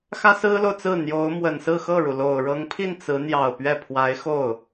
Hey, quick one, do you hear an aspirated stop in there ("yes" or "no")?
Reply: yes